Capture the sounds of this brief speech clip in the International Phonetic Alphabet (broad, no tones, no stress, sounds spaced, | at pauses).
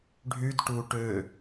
ɖʱ y d ʈ u ʈ ø